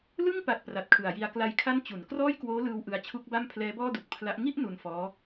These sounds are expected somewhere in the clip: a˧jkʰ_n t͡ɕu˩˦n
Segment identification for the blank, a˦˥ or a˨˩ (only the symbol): a˦˥